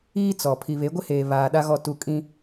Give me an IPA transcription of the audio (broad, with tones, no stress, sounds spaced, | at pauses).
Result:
iː˦ t͡s ɔ˨ pʰ i˨ β e˨˦ ɡʷ ɪ˦ h eː˨ β aː˨ ɗ a˦ ɣ ɔ˦˨ t u˦˨ kʼ ĩ˦